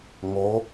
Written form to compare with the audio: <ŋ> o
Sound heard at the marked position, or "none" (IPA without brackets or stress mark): ŋ